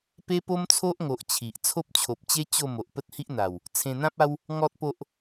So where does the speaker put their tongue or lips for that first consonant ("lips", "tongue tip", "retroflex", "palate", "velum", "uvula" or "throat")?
lips